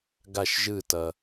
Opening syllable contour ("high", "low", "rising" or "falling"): falling